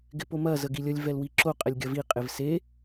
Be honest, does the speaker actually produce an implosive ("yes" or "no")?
no